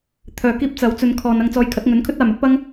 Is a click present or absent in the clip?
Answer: absent